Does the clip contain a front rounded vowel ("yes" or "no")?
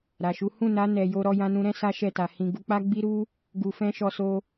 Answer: no